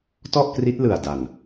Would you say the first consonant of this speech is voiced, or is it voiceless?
voiceless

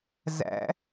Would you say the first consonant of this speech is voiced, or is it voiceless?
voiced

